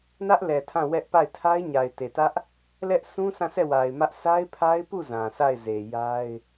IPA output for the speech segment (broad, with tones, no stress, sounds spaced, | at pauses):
n ä˦ ʔ l ɛ˨ tʰ ã˦˨ w ɛ˦ ʔ p a˦˨ ɪ̯ tʰ a˦ ɪ̯ ɲ a˨ ɪ̯ t e˨ t ä˦ ʔ | l ɛ˦ ʔ s ũ˦ s ã˦˨ s ɛ˦˨ w a˨ ɪ̯ m ä˦ ʔ s a˦ ɪ̯ pʰ a˦ ɪ̯ p u˦˨ z ã˨ s a˦˨ ɪ̯ z e˨ j a˦ ɪ̯